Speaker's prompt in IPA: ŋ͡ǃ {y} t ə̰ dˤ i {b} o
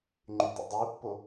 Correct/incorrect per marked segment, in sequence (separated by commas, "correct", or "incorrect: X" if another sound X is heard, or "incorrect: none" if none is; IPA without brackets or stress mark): correct, incorrect: pː